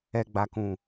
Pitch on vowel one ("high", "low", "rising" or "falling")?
low